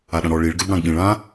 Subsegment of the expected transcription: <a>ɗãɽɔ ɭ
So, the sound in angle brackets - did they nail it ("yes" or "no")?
yes